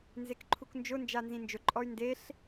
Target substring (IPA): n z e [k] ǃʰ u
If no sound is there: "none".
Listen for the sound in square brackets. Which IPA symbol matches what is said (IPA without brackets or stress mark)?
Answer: k